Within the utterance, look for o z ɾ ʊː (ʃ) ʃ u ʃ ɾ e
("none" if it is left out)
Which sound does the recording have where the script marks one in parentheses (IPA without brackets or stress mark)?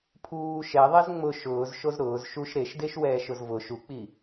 z